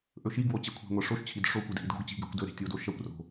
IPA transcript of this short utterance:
ʔ ɵ ʃ i ɡ w o t͡ɕ e kʷʰ e̤ ŋʷ ɐ ʂ o ʃ t͡ɕʰ i d ʂ o kʷ ɨ d ʔ i d ɡ o̤ ɡ t͡ɕ i̤ ɡ e kʷ d ɵ ɾ e̤ tʲ o d o ʃ ɐ kʷ r o̤

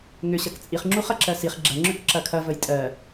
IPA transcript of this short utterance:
ŋ ʏ ɕ ɐ k t͡sʼ i χ ŋ͡ǁ u χ ɐ ǁ ɜ s i χ ɡ͡ǁ ɐ ŋ͡ǁ ʏ k ǁ ɐ kʰ ɐ v ə j tʼ ɜ

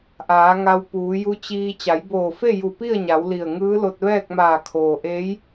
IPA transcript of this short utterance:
ʔ aː˩˧ ŋ a˧ w p uː˩˧ j u˧˥ t͡ɕ iː˧ t͡ɕ a˩˧ j b oː˧˩ f e˥˨ j u˧˩ p i˥˨ ə̯ ɲ a˩˧ w l i˧˩ ə̯ ŋ ɯː˧˥ l o˧ t̚ ʋ ɛː˥˨ k̚ m aː˧˩ kʰ oː˩ ʔ eː˧˥ j

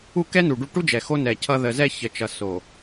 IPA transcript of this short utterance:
u˦˨ k ɛ˦ n u˨ ɖ u˦˨ ʈ u˦ d͡ʒ ɛ˨ x o˦ n ɛ˨ cʰ ʌ˦ ð ə˨ z ɛ˦˨ ç ə˨ t͡ʃ ʌ˨ s o˨

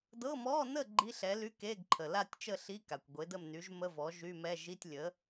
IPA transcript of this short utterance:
d ɤ˧˥˧ m ɔ˧˥˧ n ə˥˨ ɡ͡ǃ i˧˥˧ ɬ ɛ˩˥ l y˧˥˧ k e˧˥˧ ɡ ǃʰ ə˩ l a˥˨ tʲ t͡ʃ ə˥˨ ɬ i˧˥˧ k a˩ kʷ ɡʷ e˩˥ d ə˥˨ m n y˩˥ ʒ m ə˧˥˧ v ɔ˩˥ ʒ y˧˥˧ m ɛ˧˥˧ ʒ i˧˥˧ tʲ lʲ ə˩˥

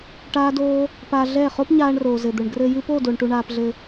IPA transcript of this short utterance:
ʈ aː˦ d oː˦ | p a˧ ɮ ɛ˦˨ χ o˦ p ɲ aː˧ ɳ r oː˨ z ɘ˨ d̪ ɘ˨ ɳ ɡ r ɘ˧ j ɨ˧ p o˦˨ d o˨ ɳ ʈ u˧ ɳ aː˧ p ɮ ɘ˧

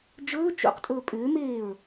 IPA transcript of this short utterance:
d͡ʒ ɵː t͡ʃ ṵ q tʼ ɵː pʼ ʏː m eː ɹ

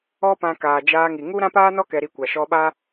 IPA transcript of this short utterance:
ɔ˦ p ã˧ k aː˨ d͡ʒ aː˧ ŋ i˨ ŋ u˦ ɾ ã˦ p aː˦ n ɔ˦ k ɛ˧ ɾ i˧ kʷ a˨ ʃ ɔ˧ ɓ a˦

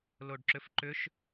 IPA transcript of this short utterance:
l o ɖ ǁ ʏ f ǃ ʏ ʃ

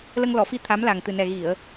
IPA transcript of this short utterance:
l ə˧ ŋ l ɔ˨˩˨ f i˧ t̪ʰ a˧˥ m l a˨˩ ŋ t̪ ɨ˨˩ n ɛ˨˩ ɣ i˨˩˨ ə̯

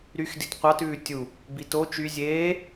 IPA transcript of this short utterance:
ɾ y x d i t qʷ ɑ t ʉː tʲ u | b i t o t͡ʃ y zʲ eː

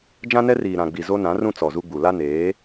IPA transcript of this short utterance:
d͡ʒ ã˦ n ɛ˦ r iː˨ ɾ ã˨ ɡ͡b i˨ z o˦ n ã˨˦ r ũ˦ t͡s ɔ˨ z u˦ ɡ͡b u˨ l a˦ n eː˨˦

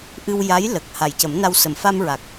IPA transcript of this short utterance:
ʔ ɨ˧ w j a˧˥ j l ə˨˩ k̚ h a˨˩ j c ə˨˩˦ m n a˧ w s ə˨˩ m f a˧ m ɹ a˨˩ k̚

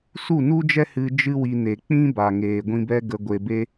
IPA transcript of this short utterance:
s u˦˨ n u˦ d͡ʒ ɛ˦ h ɨ˧ d͡ʒ ɨ˦ w i˧ n e˨ k͡p ĩ˦ b a˨ ŋ eː˨ ɡʷ ĩ˧ b ɛ˦ ɡ ə˧ ɡʷ e˧ b e˦

